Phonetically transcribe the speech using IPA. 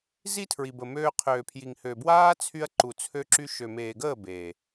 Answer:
z i˦ tʰ ɹ i˨ b ə˨ m øː˧ qʰ øː˨ pʰ j i˨ ŋ h ø˨ b w aː˦ t͡sʰ y˧ ɐ̯ ǃ u˨ t͡sʰ ø˧ ǁ y˧ ʃ ø˨ m eː˨ ɡ əː˦˨ b eː˨

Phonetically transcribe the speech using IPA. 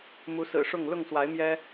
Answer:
m u˨˦ s ɹ̩˨˩ ʂ ʊ˥˨ ŋ l ʊ˥˨ ŋ s w a˨˦ ɪ̯ m j ɛ˦

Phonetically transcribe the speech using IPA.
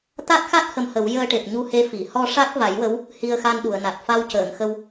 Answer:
t̪ a˦˥ t̚ x a˦˥ t̚ h ə˧ m h ə˨˩˦ w j əː˧ ʈ e˨˩ p̚ ɲ u˧ h e˧ f i˨˩˨ h ɔ˧ ʂ a˦˥ k̚ v a˨˩˦ j w ə˧˥ w | h i˧ ə̯ x a˧ n ɗ u˨˩˨ ə̯ n a˨˩ t̚ f a˧ w c əː˨˩˨ ŋ x ə˧ w

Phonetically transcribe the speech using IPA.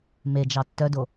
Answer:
m e d͡ʒ ɑ tː œ d o

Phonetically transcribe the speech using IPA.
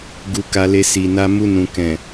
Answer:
ɡ u˧ k a˧ l e˧ s i˨ n a˧ m u˧ n ũ˨ k ɛ̃˨

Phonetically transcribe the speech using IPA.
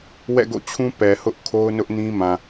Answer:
w ɛ̰˦˨ ɡ o̰˦˨ t͡ɕʰ ũ˦ p ɛ˨ h ʊ˦ ʔ kʰ o˦ ʊ̯ n ʊ˦ ʔ n ĩ˦ m ã˨

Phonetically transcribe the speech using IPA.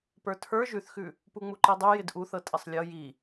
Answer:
p ə˞ tʰ ə˞ ʒ ʉ θ x ʉ | p u ŋ͡m u ǃ i dˤ ʉ j ɪ d ʔ u θ ɤ tʼ ɪ sˤ lʲ ɤ j i

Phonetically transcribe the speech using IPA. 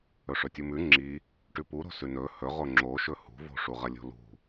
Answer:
ɵ ʂ ɵ tʲ u m ʉ ŋ͡ǁ i | ʈ ʉ p u ɾ o̤ s ʉ n ɵ h ɵ ʁ o ŋ͡ǁ o ʃ ɵ h ṳ v o̤ ʂ u ʁ ɐ lʲ o̤ l ṳ

